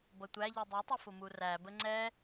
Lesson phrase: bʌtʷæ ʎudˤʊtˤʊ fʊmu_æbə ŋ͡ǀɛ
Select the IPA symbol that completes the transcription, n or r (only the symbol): r